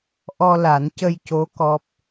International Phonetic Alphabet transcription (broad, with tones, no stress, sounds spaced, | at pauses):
ʔ ɔ˧ l a˨˩˦ n c ə˧ j c o˧˥ k ɔ˦˥ p̚